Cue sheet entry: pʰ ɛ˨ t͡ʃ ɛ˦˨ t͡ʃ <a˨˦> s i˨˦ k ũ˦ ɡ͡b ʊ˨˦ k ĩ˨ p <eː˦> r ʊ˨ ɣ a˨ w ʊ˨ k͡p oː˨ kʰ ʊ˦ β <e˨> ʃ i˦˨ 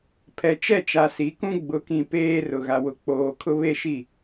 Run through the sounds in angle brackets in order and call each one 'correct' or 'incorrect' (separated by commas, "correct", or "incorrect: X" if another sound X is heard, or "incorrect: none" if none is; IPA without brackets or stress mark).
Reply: incorrect: a˨, correct, incorrect: e˦